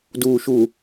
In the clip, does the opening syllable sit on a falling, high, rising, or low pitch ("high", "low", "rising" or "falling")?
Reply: low